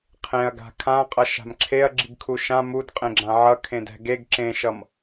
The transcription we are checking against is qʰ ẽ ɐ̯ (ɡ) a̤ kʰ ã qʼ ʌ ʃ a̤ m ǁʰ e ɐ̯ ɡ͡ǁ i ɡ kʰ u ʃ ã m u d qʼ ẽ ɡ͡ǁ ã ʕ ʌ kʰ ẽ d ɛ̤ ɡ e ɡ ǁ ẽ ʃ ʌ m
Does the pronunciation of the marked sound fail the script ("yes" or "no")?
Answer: no